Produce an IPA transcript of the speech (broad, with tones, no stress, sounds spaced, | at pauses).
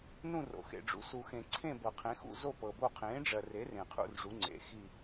n ũ˥˧ r o̰˨ x ḛ˨ ɖ͡ʐ ṵ˨˥ s u˨ x ẽ˨ ǀʰ ẽ˥˧ b ɤ˨ qʰ ẽ˨˥ x ṵ˥˧ z o˥˧ p ɤ˨ b o˥˧ qʰ ẽː˨˥ ɖ͡ʐ ɜ˨ r e˨˥ r ẽ˨ qʰ ṵ˥˧ r ʐ u˨˥ ŋ͡ǀ ḛ˨˥ x i˥˧